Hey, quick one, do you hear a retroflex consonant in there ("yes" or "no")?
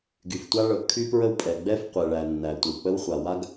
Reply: yes